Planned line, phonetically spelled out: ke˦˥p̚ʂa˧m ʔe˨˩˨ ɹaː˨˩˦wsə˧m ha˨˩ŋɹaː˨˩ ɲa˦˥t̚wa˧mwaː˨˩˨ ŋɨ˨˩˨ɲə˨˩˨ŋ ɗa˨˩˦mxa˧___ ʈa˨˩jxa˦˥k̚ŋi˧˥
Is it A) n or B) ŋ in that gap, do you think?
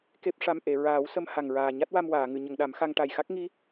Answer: B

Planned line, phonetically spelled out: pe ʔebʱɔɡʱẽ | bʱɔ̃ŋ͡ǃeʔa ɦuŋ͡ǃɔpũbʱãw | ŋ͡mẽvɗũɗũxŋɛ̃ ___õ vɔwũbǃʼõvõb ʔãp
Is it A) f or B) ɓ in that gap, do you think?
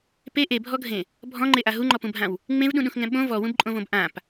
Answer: B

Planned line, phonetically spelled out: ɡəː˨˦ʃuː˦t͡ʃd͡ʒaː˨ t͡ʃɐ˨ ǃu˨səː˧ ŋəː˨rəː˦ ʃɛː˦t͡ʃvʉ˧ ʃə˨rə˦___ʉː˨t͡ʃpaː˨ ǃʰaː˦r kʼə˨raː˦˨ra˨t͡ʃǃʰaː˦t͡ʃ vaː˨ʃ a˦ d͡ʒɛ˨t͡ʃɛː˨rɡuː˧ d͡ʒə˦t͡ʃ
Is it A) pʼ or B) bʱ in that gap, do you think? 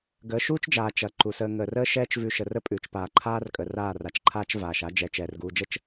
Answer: A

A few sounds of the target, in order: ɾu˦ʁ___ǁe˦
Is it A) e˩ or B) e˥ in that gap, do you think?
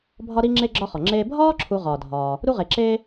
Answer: A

